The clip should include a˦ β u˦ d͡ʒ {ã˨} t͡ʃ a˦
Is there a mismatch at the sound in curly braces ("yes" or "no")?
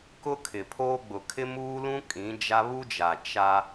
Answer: yes